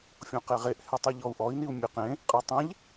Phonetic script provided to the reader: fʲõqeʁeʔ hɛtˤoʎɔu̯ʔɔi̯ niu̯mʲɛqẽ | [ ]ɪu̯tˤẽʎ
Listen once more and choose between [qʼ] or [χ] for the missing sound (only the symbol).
qʼ